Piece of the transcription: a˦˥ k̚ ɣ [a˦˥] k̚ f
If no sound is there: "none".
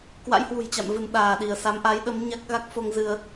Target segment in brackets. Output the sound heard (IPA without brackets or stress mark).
a˦˥